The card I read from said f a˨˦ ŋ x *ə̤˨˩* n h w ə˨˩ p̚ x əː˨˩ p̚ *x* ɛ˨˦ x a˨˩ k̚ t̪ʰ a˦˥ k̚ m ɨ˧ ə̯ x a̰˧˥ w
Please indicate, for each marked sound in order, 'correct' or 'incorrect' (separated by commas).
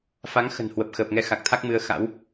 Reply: correct, incorrect